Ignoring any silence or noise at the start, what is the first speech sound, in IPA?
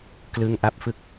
k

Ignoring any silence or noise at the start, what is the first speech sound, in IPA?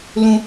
l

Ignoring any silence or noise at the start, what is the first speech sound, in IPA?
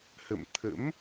h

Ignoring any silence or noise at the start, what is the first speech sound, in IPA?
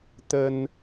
t̪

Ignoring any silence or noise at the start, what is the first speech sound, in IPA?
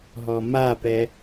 ɦ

